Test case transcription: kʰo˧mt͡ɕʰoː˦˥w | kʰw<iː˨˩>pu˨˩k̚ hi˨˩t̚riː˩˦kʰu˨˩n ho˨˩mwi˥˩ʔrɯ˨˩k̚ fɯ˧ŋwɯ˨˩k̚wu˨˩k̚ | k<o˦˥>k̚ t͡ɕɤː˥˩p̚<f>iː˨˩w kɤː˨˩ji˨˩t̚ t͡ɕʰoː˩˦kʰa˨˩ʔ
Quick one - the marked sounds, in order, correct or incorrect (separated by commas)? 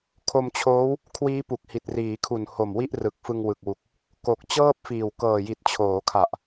incorrect, incorrect, correct